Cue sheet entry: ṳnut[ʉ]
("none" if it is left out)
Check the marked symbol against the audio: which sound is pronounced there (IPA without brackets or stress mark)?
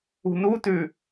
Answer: ʉ